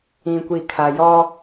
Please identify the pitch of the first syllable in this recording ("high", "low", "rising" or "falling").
low